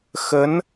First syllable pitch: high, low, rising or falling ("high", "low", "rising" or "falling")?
rising